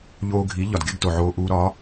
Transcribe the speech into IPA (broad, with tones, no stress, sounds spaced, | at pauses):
ʎ oː˧ ɡʱ i˩˥ ʎ ɒ˩ d ɡ e˥ ɡ t o˩ ʕ oː˧ ʔ uː˧ ɾ ɒ˩˥